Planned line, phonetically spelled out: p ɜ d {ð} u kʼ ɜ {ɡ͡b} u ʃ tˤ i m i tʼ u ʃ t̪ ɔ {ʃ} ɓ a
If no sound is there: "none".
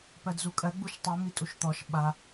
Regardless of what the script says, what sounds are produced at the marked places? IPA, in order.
z, ɡ͡b, ʃ

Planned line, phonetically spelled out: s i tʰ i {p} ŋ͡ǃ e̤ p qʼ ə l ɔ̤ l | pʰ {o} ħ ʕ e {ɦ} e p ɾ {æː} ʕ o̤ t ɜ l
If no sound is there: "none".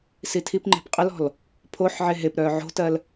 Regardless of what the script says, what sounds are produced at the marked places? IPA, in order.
p, o, ɦ, œː

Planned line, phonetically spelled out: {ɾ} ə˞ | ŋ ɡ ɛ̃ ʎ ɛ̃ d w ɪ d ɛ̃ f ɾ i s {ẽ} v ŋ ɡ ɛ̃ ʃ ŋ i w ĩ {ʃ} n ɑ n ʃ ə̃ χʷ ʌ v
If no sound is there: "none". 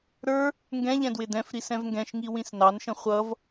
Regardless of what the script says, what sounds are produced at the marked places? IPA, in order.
ɾ, ɛ̃, s

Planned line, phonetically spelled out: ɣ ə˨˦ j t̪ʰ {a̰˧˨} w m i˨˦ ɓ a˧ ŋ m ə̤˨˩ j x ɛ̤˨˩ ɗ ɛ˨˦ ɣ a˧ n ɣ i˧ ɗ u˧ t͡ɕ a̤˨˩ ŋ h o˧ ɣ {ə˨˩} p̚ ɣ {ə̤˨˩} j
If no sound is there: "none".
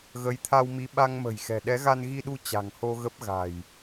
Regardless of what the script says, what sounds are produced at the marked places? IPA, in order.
a˧, ə˦˥, a̤˨˩

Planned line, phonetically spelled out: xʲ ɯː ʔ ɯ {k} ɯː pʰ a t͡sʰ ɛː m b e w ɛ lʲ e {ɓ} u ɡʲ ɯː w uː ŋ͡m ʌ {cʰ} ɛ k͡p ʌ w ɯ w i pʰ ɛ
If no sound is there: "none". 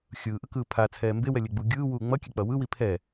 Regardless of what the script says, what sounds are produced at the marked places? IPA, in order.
k, ɡ͡b, kʲ

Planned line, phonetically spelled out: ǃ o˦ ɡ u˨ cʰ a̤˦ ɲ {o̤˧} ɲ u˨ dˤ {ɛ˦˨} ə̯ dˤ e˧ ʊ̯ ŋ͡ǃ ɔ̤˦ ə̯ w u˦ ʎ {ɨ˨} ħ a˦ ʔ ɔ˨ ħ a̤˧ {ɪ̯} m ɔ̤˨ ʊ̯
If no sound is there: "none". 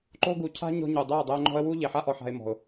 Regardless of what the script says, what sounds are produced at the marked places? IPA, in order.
ɔ̤˧, ɛ˦˨, e˨, ɪ̯

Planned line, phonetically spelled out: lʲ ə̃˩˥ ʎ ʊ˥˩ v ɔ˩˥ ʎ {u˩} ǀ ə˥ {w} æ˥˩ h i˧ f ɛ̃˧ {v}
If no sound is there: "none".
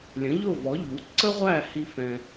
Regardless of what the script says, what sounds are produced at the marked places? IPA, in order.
u˩˥, ʁʷ, none

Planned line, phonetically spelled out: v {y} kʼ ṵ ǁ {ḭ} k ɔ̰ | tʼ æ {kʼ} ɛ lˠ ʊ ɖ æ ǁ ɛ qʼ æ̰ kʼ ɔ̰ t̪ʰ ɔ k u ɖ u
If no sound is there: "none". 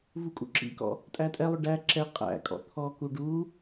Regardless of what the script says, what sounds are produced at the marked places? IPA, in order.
u, ḭ, tʼ

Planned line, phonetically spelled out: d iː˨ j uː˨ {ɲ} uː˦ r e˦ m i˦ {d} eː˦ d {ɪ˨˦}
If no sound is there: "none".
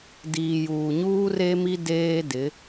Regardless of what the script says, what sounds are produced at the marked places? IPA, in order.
ɲ, d, ɪ˨˦

